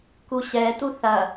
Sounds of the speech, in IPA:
k u ɕ ɛ t u θ ɐ

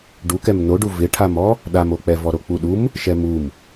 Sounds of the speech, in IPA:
ɖ u k ɛ m n o ɖ u v ɪ ʈʰ a m ɔ | ɗ a m o k͡p ɛ v ɔ ɾ o k͡p u ɗ u m | ʃ ɛ m u m

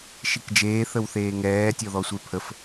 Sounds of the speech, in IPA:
ʃ i k d͡ʒ eː θ ə w θ eː ŋ ɛː tʲ ɔ ð ɔ sʷ e pʰ ə f

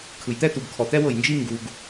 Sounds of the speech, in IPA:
kʰ ɯ˨ j t̪ ɛ˥ t̪ u˨ ɡ kʰ ɔ˨ t̪ ɛ˥ w ɤ˨ j n d͡ʒ i˥ ŋ ɡ u˨ ɡ

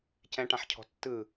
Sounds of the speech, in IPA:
c ɛ̃ ʈ ã ħ cʰ ɔ̤ tː ɯ

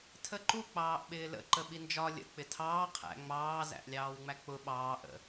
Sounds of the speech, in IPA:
tʰ ə ǃ u k͡p ɑː ʔ ɓ ɪː l ə̰ ǃ ə ɓ i n d͡ʒ ɒ lʲ ə̰ k͡p ɪ tʰ ɑː qʰ æ̰ ŋ͡m ɑː z æ̰ ʔ lʲ ɑː w ŋ͡m æ k͡p ʊ ɓ ɑː ʔ ə̰

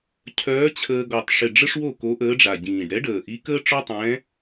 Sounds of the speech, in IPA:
cʰ œː˧˥ t͡ɕʰ əː˧ ɡ ɔ˨˩ tˤ ʂ ɪ˨˩ ɖ͡ʐ ə˥ ʂ w o˥˩ k o˧˥ ʔ əː˧˥ ɖ͡ʐ a˨˩ ɟ ĩː˨˩ ɖ ɾ ɛ˧˥ ɖ əː˨˩ ʔ i˧˥ k əː˥ ʈ͡ʂ ɔ˥ tˤ ɛ̃ː˧˥

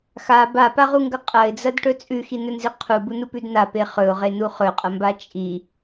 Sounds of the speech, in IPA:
x a b a p a ʁ u ŋ ɡ ɐ qʼ ɐ ɪ̯ d͡z ɐ d ʈ ɵ t͡sʼ ʉ x i n ɵ n z i qʰ u b u n u p ʉ d n a p e χ ɵ ʊ̯ ʁ e n u χ ɵ qʼ ɐ m b a t͡ʃʼ i

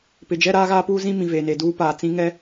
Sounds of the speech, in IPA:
p ɪ˨ d͡ʒ ɛ˦ ɾ aː˦ ɣ aː˦ p uː˦ z ĩ˦ m ĩ˨ v eː˨ n e˨ d uː˦ p aː˨ t͡s ĩ˦ ŋ ɛ˦

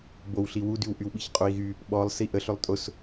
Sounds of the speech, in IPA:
b o w ɬ i w u d y w ʔ y w ɓ i ç qʼ o i̯ ɣ y | ɓ ɔ lˠ s i ʔ ə ɬ ʏ lˠ tʼ ʊ s

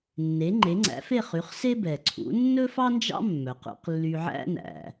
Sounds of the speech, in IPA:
nː e˩˥ ŋ͡ǃ e˩˥ ŋ͡ǀ æ̰˩˥ f e˥˩ χ y˩˥ χ s e˥ b ɛ˩ ǀʰ ṵ˩˥ nː ɵ˥ f ɑ˥ n d͡ʒ ɑ̰˥ mː œ˩ q ṵ˧ q lː y˧ ʕ æ̰˥ n æ̰˩

